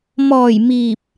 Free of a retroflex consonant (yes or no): yes